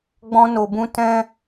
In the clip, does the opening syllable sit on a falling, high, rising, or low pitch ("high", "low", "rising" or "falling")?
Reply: high